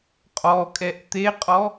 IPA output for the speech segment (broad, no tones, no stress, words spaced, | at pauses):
qʼɔkʼɛʔ t̪eqʼɔ